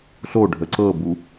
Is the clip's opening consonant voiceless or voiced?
voiceless